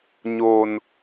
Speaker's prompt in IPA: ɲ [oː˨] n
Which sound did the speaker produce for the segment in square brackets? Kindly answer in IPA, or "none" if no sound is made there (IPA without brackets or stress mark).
oː˨